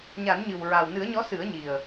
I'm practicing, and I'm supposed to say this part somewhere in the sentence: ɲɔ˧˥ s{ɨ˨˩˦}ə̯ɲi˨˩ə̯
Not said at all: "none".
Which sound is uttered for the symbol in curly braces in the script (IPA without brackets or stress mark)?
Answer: ɨ˨˩˦